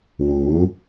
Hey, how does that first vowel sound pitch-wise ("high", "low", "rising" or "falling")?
rising